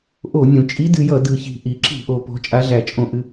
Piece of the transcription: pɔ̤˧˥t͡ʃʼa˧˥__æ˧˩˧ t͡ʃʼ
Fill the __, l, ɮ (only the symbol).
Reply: ɮ